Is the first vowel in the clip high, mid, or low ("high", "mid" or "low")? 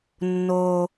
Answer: mid